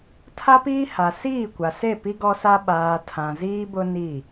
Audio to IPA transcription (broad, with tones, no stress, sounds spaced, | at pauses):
tʰ a˦ p iː˦ h a˨ s iː˦˨ kʷ a˨ s e˦˨ p i˦ ɡ ɔ˦ s a˦ ɓ aː˨ tʰ ã˨ z iː˦ b ʊ˦ n i˦˨